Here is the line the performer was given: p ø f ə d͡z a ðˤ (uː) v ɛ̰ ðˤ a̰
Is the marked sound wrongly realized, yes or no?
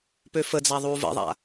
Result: no